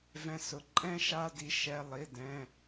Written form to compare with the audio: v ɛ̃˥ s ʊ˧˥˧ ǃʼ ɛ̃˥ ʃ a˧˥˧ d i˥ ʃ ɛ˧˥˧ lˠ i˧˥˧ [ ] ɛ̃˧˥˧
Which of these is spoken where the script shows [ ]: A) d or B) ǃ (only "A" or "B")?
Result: A